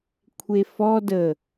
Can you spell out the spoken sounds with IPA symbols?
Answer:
kʷʰefɔ də

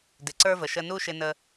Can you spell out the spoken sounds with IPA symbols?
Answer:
dɪ˩ǀə˞˥və˩ ʃə˧nu˥ʃɪ˧nə˧

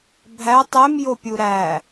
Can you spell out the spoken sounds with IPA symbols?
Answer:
bʱæ tˤemjopʲu ɾæ

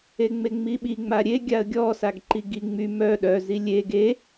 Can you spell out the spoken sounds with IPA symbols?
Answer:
eŋ͡meŋ͡miɓi ŋ͡maɾʲe ɡʲaə̯ɡʲɔ saɡǃiɡi ŋ͡my mœ ɗœzi lʲe ɡe

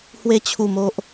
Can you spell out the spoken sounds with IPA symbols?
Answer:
hwe˧t͡ɕʰu˨˩m o˨ʔ

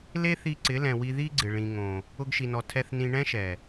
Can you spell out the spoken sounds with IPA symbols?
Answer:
le˦θi˧ ǀɪ˨˦lɛ̃˨wi˧ ði˦ɡ͡ǀɪ˨ ɭĩ˨ŋõ˨ | ʊ˧ɡʃi˨nɔ˨ tʰɛ˦θ nĩ˧ɳɛ̃˦ʃɛ˨

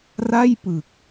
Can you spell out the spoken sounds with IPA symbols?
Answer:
ra˥˩jpɯ˨˩k̚

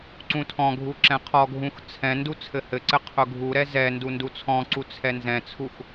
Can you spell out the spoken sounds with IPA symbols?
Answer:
ǀũtʰɔ̃ɡʱu ǁɛ̃qʰɔɡʱũx t͡sʰɛ̃ndu t͡sʰɘhɘǀɘ qʰʊɡʱuɾɛ zɛndu ndut͡sʰɔ̃ǀu t͡sʰɛnzɛ̃t͡sʰux

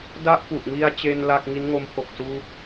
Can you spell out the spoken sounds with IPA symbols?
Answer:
da˥˩ʔpu˨˩ʔŋi˧a̯t͡ɕe˧n la˥˩k̚ ŋi˦˥nŋo˦˥mpʰo˨˩k̚ suː˥˩k̚

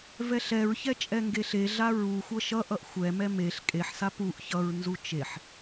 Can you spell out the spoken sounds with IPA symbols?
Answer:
vɛɬɛɹçɛ t͡ʃʼɛŋɡeɬeɮa ɹuxʷʌ ʃʌʔʌʔ xʷɛmɛ meɬ kʼeħsa puʔ çʌɹnzu t͡ʃeħ

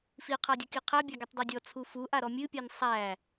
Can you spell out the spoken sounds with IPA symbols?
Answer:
fiqʰadʲɨki qʰæbʲa ɡitˤdˤedʲɔ t͡sʰufu ʔaɾɔmʲɨpʲan sˤæ

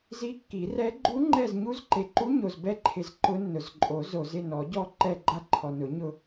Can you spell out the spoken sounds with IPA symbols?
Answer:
zi˧˥kːi˨˩˦rɛ˧˥ ɡ͡ǃu˧˥ŋ͡ǃɛ˦˨z ɲu˧˥zǃe˨ǃu˧˥ ɲo˨zbɛ˦˨ǃʰɪ˨z ǃʊ˧˥nːʊ˨z ǃʼo˨˩˦ zo˨zɪ˦˨nɔ˨˩˦ɟɔ˦˨ ǃɛ˦˨ɡ͡ǃa˦˨ǃʰɔ˨nʊ˨˩˦ ɲʊ˦˨

